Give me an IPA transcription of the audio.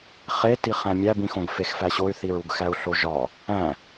χ e t i χ æ̃ mʲ æ b ĩ x õ ɡ f e x f æ ɕ o y̯ θ i ɹ u ɡ x æ u̯ ɬ o ʒ ɒ | æ̃

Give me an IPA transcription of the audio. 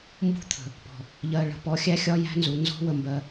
m b ṳ˦ t̪ʰ ə̤˨ | p ɔ̤˨ | ʎ ɜ˨ ɭ ə̤˨ p ɔ˨˦ xʲ æ˦ xʲ ɒ˦ j æ̤˦ n z u˨ n z ɔ̤˦ w ə˦ m b ɜ˦

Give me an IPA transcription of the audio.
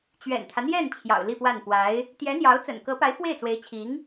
t͡ɕ ɥ ɛ̰˨˩ n t̪ʰ ä˦ n̪ j ɛ˥˩ n t͡ɕʰ j ɑ̰˨˩ ʊ̯ l i˥˧ p w a˥˩ n p w a˧˥ ɪ̯ | t̪ j ɛ˧˥ n̪ j ɑ˧˥ ʊ̯ t͡s ə̰˨˩ n k ɤ˧˥ p a˧˥ ɪ̯ f w e˥˩ ɪ̯ t͡s w e˧˥ ɪ̯ t͡ɕʰ i˧˥ ŋ

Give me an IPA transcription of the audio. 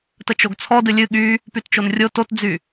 t ə t͡ʃ o ɡ t͡sʰ ɔ d ɨ lʲ ɨ ɠ y | p y t t͡ʃ o n rʲ o t o t d͡z y

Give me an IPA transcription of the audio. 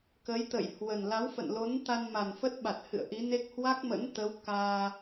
k ə˨˦ j t̪ ə̰˧˨ j h w ə˨˩ n l a˨˦ w f ə̰˧˨ n l o˨˦ n t̪ a˧ n m a˨˩ n f ə˦˥ t̚ ɓ a˨˩ t̚ h ɨ̰˧˨ ə̯ ʔ i˨˦ n e˦˥ k̚ h w a˦˥ k̚ m ə̰˧˥ n t̪ ə˨˦ w k aː˧

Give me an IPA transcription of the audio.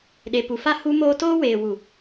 ɗ e˨ p u˨ f a˦ h u˦ m oː˦ t oː˦ w eː˨ w u˨

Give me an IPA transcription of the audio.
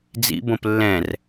d͡z ḭ b õ p lː ɛ̃ r

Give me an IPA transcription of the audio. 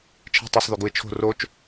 t͡ʃʰ e̤ tˤ u sˤ ð y ɡ u ɪ̯ t͡ʃʰ o̤ r o t͡ʃ

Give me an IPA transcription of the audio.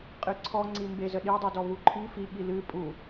qʼ ɨ ǀʰ ɔ ŋ͡ǀ i m b e z ə ɗ i dˤ u d ɔ β u ǃʰ i f i ɠ i l ɨ pʼ u

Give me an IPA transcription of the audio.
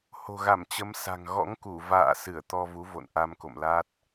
h o̤˨˩ ɣ a˧˩ m t͡ɕ ə˨˦ m s a̤˨˩ ŋ ɣ ɔ̰˧˥ ŋ k u˧˩ v a̰ː˧˨ s ɨ˧˩ ə̯ t̪ ɔ˧ v u˨˦ v o̰˧˨ n ʔ a˧ m k o̰˧˨ m l a˦˥ t̚

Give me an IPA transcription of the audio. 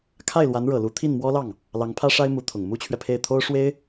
kʰ a˥˩ ɪ̯ l w a˧˥ n ɻ ɤ˨˩ l u˧˥ t̪ʰ i˥˩ n m w ɔ˥ l ɑ˥˩ ŋ | l ɑ˧˥ ŋ pʰ ä˥ ʂ a˥ ɪ̯ m u˧˥ t̪ʰ ʊ˨˩ ŋ m u˥ t͡ɕʰ ɥ ɛ˨ pʰ e˥˩ ɪ̯ t̪ʰ o˥ ʊ̯ ʂ w e˥ ɪ̯

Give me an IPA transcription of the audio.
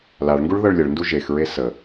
l a ɭ ŋ ɡ u ɭ ð ɤ ɭ lʲ ə ɭ n d u ʒ e x ɹ e s ə

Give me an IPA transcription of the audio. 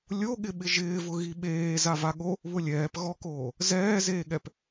lʲ o ɠ ɪ ɓ ɪ ʒ ɪː v ʊ ɣ i ɓ eː z a v a ɠ o | β ʊ lʲ ɛː p ɣ ɔ k oː | z ɛː z eː ɠ ɛ p

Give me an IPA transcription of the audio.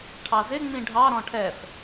ʈʰ ɑ z ɪ ŋ͡m ĩ ɖʱ ɑ ɾ ɔ̃ ʈʰ ɛ f

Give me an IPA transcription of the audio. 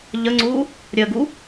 ʎ ə ŋ͡ǀ u | ɾʲ ə ɡ u

